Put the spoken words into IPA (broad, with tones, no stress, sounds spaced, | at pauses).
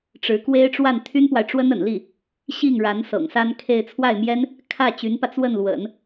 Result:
ʈ͡ʂ ɻ̩˧˥ k w e˥ ɪ̯ ʈ͡ʂ w a˥˩ n t̪ʰ y˥ n p w a˨ ɪ̯ ʈ͡ʂ w ə˥ n ə̰˨˩ n l i˥˩ | ɕ i˥˩ ŋ ɻ a˧˥ n s ɤ̰˨˩ ŋ s a˥ n kʰ e˥˧ ɪ̯ t͡sʰ w a˥˩ ɪ̯ m j ɛ˥ n | kʰ ä˥˩ t͡ɕ y˧˥ n p ä˧ t͡s w ə˥˩ n l w ə̰˨˩˦ n